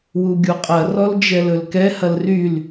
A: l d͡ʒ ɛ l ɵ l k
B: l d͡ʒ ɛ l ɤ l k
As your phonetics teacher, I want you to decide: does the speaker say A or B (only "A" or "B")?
A